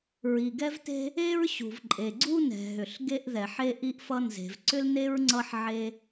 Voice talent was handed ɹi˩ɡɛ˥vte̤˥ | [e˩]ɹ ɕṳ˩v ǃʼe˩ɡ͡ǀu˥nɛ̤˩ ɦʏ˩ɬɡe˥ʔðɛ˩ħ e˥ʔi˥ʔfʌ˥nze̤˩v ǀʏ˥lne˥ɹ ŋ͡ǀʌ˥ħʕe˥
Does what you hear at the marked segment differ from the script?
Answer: yes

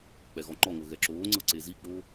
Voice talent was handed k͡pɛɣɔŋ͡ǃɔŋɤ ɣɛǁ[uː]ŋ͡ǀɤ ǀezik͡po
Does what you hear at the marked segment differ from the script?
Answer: yes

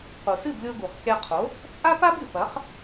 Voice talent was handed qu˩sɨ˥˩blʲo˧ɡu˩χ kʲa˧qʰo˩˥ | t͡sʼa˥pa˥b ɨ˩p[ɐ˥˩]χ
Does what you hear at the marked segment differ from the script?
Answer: yes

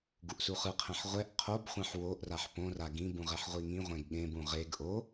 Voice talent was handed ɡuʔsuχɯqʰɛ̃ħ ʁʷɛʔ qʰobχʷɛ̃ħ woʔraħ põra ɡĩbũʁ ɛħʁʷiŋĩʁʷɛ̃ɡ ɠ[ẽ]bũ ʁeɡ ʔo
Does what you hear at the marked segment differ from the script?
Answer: no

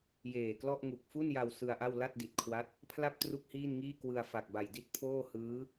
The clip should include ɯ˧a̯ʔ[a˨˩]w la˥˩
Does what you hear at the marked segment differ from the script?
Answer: yes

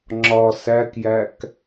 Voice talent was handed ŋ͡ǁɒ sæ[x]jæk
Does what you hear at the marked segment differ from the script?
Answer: yes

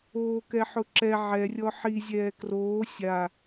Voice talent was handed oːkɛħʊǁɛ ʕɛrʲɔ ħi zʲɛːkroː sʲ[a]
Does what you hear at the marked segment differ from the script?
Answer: no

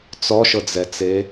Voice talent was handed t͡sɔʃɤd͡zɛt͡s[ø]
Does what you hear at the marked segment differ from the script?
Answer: yes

